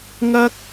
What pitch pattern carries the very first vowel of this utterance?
high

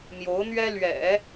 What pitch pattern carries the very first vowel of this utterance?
rising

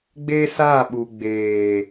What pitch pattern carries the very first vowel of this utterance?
high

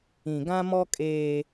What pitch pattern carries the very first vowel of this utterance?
low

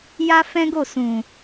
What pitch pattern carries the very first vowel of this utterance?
high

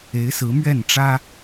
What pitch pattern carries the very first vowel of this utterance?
rising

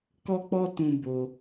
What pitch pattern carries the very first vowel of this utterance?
high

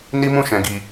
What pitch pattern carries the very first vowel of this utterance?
high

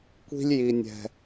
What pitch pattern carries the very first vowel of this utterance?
high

